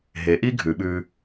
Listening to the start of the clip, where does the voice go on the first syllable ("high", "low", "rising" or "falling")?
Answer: rising